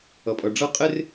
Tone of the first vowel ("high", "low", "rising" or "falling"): low